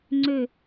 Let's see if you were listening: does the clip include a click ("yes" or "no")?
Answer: yes